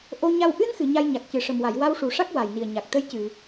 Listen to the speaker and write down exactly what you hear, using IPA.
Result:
ʔo˧ɲa˧w ʔɨ˧nxɨ˨˩˨ ɲa˧jɲa˨˩k̚ cɨ˨˩ʂə˨˩mwa˨˩˨j wa˧wʂu˨˩˨ʂa˦˥k̚ wa˨˩jni˨˩ə̯ ɲa˨˩k̚ t̪ə˧jcɨ˨˩˨

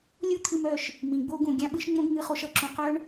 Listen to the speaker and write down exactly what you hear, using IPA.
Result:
lʲu˦t̪ʰɨ˧m œ˦˨ʃ | mĩ˨ɡ͡bo˦ ɡũ˨ɡʲã˦ɓɨ˦ʃ ŋ͡mõ˦ɡ ŋɨ˧χo˧ʃ ʌ˨ǁũ˨ qœ˦ɳ

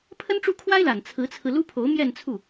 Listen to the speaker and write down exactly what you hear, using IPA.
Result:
pʰə˥nʈ͡ʂu˥˩kʰwa˥ɪ̯la˨˩n t͡sʰɹ̩˧˥t͡sʰɹ̩˧ lu˥pʰo˧˥ʊ̯mjɛ˥˧nt͡sʰu˥˩

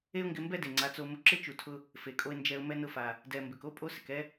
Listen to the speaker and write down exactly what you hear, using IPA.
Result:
e˦ʊ̯ŋɡɪ˧mbɛ˦ de˨ŋ͡ǀa˨˦t͡so˧ mʊ˧ǁɪ˦t͡ʃu˨tʰʊ˧ | fe˨kʼo˧ɪ̯ nd͡ʒɛ˧ʊ̯mɛ˦ nʊ˧fa˨ | dɛ˨mbɪ˨ko˦ pʼo˦sɪ˨kɛ˦

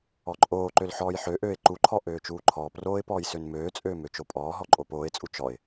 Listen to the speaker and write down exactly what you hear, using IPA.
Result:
ɔǃʼoːǃøl ħɔːjħøʔøːɪ̯ ǃuǃʰɔ ʔøːt͡ʃuːǃʰɔːproːɪ̯ pɔːjsønmøːt͡sʼøː møt͡ʃopʼɔːɦɔ ǃʼoːpoːɪ̯t͡sʼu t͡ʃɔɪ̯

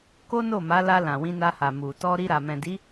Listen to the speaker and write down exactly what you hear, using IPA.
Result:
ko˦no˦˨ma˨˦la˧ lã˨wĩ˧na˧ha˨ mu˨ tɔ˧ ɾi˧ɾa˨ mɛ̃˨di˨˦

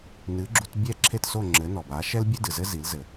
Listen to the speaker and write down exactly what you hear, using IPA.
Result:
nɨ˩˥ɡ͡ǁu˧t bʲɛ˥˩ǁʰe˥˩tso˥˩ ŋ͡ǁɘ˩˥nɔ˩ba˩˥ʃɛ˥l bʲɨ˥dɨ˩zɘ˥ zi˩˥lzɘ˩

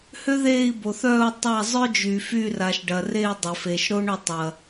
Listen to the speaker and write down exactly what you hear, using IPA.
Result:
hø˥ ðeː˦˨i̯bo˩θœː˦˨u̯ tˤa˦˨ zˤœ˥d͡ʒy˩ fy˦˨ra˩ʃɖɐ˩re˦˨i̯ dˤʏ˩fe˩ʃ ɾo˥ɳʏ˦˨ tˤɐ˩

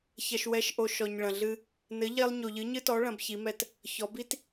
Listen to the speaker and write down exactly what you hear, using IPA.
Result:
çɐ˨ʃwɛ˨˥ʃʔo˨ ʃɔ˨ɲɭɐ̃˨ɮɨ˦ | nɘ˨˥ʎe˦lˠ ɲo˨ʎɨ˨˥ɲɨ˦tɔ˨˥ ɭɐ̃˨˥bçi˨˥mɛ˦t | çɔ˨˥ bi˦t

